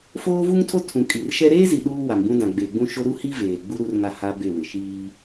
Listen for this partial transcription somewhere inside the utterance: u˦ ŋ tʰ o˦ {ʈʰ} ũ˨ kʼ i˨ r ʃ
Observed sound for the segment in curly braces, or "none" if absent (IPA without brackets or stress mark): tʰ